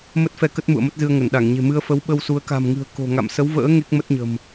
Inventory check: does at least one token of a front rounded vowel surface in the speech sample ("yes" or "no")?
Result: no